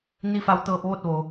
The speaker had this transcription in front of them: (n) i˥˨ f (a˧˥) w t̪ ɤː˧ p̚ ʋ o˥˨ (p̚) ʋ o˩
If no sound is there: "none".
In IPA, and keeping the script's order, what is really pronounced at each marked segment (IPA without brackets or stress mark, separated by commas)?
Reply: n, a˧˥, t̚